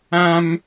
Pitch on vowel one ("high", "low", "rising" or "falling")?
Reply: high